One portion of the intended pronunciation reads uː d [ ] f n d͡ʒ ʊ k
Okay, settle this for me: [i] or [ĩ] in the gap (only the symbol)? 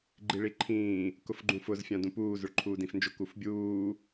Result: ĩ